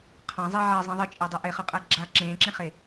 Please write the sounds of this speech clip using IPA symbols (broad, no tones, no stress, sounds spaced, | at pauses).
qʰ ã zˤ e ʕ ɛ zˤ ẽ ðˤ ɨ t͡ʃʼ e dˤ ɛ ʔ e χ ɨ qʼ ɛ ɡ͡ǁ a ǁ ẽː ǁ ẽ χ e